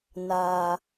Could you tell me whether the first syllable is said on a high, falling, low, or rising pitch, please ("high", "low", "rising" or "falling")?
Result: low